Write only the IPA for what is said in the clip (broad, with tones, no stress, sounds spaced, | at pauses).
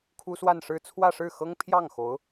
kʰ u˥ s w a˥˧ n ʂ ɻ̩˥˧ t͡sʰ w ä˥˧ ʂ ɻ̩˥˩ x ɤ˥ ŋ pʰ j ɑ˥˩ ŋ x o˧˥ ʊ̯